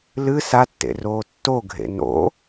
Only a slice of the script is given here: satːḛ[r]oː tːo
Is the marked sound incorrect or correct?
correct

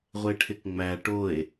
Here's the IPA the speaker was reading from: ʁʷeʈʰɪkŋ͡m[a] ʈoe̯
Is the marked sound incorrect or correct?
incorrect: æ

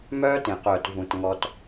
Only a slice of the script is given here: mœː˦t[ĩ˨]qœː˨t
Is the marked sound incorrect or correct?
incorrect: ẽ˨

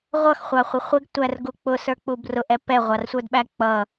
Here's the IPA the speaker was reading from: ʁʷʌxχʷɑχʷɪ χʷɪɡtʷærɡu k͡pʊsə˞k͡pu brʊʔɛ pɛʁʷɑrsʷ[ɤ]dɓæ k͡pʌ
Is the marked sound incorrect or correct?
incorrect: ə˞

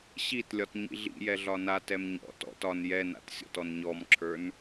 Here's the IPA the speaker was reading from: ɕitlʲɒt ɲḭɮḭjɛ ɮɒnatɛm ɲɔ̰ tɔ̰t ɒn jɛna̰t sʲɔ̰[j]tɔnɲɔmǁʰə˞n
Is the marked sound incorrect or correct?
incorrect: none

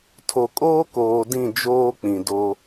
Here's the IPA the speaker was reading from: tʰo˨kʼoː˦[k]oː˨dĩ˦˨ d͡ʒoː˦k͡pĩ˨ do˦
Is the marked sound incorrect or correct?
correct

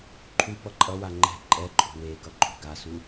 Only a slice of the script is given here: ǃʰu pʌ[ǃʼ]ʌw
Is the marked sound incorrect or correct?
correct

